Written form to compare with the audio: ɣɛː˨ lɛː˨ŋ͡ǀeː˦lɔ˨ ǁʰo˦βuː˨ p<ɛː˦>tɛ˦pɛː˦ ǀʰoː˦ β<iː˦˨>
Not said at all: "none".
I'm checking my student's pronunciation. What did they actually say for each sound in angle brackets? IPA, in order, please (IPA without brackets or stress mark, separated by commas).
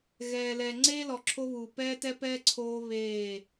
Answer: ɛː˦, eː˦˨